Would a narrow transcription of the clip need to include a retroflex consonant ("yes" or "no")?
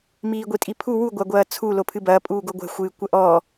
no